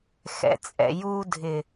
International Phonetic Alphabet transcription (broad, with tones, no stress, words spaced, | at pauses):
xɛ̰˨t͡sʼɛ̰˨ ju˨ dʱɪ˨